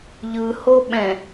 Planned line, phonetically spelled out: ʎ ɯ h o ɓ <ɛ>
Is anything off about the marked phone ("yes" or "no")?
yes